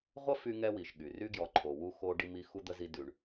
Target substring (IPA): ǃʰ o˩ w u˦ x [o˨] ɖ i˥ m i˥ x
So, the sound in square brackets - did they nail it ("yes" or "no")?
no